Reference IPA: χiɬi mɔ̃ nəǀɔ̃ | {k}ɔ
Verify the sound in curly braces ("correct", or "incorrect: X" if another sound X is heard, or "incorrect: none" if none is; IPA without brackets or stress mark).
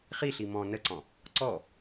incorrect: ǀ